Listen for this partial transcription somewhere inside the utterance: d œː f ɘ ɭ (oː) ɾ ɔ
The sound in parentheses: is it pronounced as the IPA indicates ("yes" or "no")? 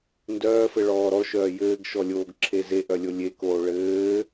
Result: no